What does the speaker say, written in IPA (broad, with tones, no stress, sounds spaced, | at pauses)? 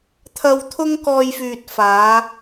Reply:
t̪ʰ ɐ˧ w t̪ʰ ʊ˥ ŋ k ɔː˧ j f yː˨ t̚ f aː˨˥